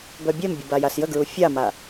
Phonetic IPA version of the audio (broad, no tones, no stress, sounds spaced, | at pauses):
b œ bʲ ɛ m bʲ ə b a j a s j ə ɡ ɹ u fʲ a m a